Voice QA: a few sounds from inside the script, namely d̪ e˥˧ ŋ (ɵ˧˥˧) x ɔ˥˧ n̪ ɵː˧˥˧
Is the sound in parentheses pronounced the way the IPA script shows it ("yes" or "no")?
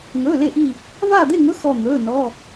yes